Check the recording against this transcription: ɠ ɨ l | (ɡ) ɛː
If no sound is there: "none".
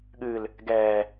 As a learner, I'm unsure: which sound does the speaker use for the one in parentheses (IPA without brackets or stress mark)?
ɡ